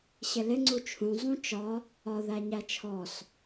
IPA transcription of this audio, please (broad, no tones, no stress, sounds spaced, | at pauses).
ɕ ɪ l ɪ ŋ͡ǀ u t͡ʃʰ ũ zˤ ũ t͡ʃ ɒ | ɒ ð æ ɲ æ t͡ʃʰ ɔ s